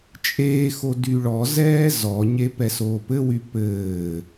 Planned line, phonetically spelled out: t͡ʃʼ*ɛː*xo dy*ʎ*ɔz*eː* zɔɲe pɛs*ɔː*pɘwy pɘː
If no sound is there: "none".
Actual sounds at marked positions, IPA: eː, ɭ, ɛː, oː

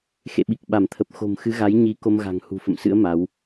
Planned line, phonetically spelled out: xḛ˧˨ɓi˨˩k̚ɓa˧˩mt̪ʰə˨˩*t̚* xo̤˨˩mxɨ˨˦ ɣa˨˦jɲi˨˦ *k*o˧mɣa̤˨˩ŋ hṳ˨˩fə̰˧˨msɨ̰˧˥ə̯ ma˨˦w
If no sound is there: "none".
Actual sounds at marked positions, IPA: p̚, k

